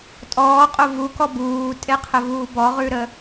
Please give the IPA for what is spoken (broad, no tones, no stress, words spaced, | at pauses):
tʼɔːqʼo vukɔ buːtʼeqʰəvuː bɔʁʉɾə